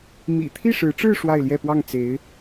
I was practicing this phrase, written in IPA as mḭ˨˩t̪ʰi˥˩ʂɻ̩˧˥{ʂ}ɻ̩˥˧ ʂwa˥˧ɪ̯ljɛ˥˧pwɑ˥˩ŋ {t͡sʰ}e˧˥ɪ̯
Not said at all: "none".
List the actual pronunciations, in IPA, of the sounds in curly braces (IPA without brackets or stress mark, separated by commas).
ʈ͡ʂ, t͡s